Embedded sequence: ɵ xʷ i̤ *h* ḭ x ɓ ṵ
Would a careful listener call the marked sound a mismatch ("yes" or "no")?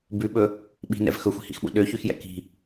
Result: no